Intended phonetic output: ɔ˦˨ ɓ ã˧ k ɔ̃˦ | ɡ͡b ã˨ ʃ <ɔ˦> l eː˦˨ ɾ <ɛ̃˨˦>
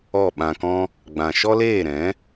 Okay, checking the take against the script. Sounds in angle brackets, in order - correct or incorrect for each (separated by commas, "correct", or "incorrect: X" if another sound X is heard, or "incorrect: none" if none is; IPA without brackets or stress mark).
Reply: correct, correct